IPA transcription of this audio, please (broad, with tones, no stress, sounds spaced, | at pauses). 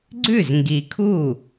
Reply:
ɡ͡ǀ ʉ˥˩ z ŋ ɡ i˨ kʰ u˥˩